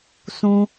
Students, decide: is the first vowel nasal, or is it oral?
nasal